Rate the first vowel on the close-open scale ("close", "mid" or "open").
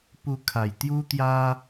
close